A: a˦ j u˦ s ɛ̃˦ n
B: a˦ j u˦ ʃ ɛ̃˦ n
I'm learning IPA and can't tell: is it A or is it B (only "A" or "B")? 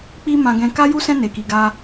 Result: A